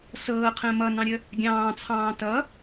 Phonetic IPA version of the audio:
s ɤː qʰ ə̃ː m ʌ n ɑ̃ ɾʲ ə | ɡʲ ɑ̃ː t͡sʰ ɑ̃ː t ʌ

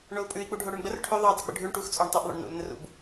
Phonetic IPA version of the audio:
ɳ o u̯ pʼ ʉ i̯ k͡p u ɖʱ o ɽ ʉ ɳ ɡ͡b ə r ʈʰ ʉ ðˤ ʉ dˤ ʉ ɡ͡b ə̰ ɖʱ ʉ ɳ ʈ u x t͡sʼ o ɳ tˤ o ʔ ðˤ o̰ ɳ n ṵ l n ə r ṵ b

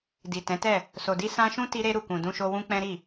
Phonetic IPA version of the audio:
d i˨ t ɛ̃˨˦ t ɛ˦˨ | s o˨ d i˧ s ã˧ ʃ ũ˦ t i˧ ɾ e˧ ɾ u˨ k ũ˨ d ũ˧ ʃ o˧ w ũ˦ k͡p ɛ̃˦ ɾ i˦˨

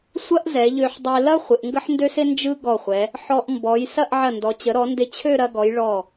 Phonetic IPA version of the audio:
sʷ ɐ˥ ʔ z ɛ˩˧ ʎ ø˧ ħ dˤ ɛ˧ l ɐ˥ χʷ ɪ˩˧ ʔ ŋ ɡ ə˥ ħ n d ø˥ s ɪ˥ n d͡ʒ ɯ˥ ɡ ɔ˧˩ χʷ ɛ˩˧ | ħ ɔ˧ ʔ m b ɔ˩˧ j s ɐ˥˧ ʔ ʕ ɐ˧˩ n d ɔ˩˧ t͡ɕ ə˩˧ ɾ ɔ˩˧ n d ɪ˧˩ t͡ɕʰ ø˥˧ ɾ ɐ˧ ɡ ɔ˩˧ j ɭ ɔ˧˩

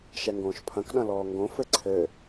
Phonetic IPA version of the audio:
ʃ ɛ ŋ ɡ õː ʃ pʰ ɐ̃ k ɗ ɐ̃ l ɔː ŋ ɡ õ f ɘ ǀʰ ɘ

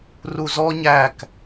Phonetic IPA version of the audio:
r u z ɔ ɲ æ k

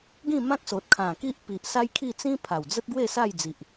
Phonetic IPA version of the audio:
ɡ ĩ˥˧ m ã˦ k̚ s o˨ t̚ kʰ ã˨˩ k i˦ ʔ p i˨ ʔ s a˦ j kʰ i˥˧ t͡s ĩ˦ pʰ a˨˩ w d͡z ə˦ t̚ ɡ w e˥˧ s a˥˧ j d͡z i˨ ʔ

